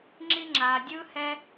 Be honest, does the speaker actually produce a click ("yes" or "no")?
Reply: yes